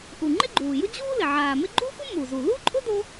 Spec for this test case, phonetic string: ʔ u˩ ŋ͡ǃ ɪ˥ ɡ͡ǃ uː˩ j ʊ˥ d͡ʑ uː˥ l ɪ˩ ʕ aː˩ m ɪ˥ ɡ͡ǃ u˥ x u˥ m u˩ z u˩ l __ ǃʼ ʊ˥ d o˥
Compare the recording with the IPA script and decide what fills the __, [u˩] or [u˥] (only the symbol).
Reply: u˥